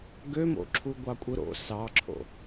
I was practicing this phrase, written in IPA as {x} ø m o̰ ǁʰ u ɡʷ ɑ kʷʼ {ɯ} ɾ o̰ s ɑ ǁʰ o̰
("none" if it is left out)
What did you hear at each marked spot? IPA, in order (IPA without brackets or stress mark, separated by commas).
ɡ, ɯ